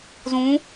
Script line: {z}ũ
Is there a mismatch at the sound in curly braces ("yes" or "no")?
no